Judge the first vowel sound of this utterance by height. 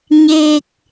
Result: mid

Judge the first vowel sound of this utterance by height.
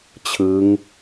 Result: high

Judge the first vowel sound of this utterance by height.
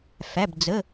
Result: low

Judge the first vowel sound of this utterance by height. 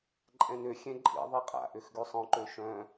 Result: mid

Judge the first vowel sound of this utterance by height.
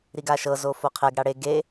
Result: high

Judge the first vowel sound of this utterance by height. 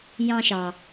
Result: low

